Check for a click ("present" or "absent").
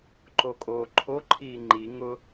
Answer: present